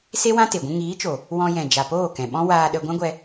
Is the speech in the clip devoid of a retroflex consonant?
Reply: yes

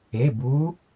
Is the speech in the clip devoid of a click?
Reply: yes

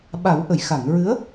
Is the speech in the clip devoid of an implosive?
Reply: no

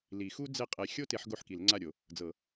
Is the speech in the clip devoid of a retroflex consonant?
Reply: yes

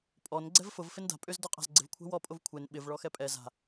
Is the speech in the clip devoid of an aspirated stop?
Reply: no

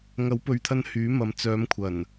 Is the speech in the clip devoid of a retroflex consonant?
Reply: yes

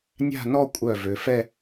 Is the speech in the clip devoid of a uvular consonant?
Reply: yes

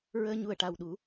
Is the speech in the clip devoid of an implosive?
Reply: no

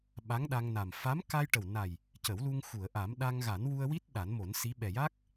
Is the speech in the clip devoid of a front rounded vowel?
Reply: yes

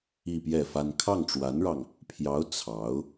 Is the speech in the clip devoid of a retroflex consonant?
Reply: no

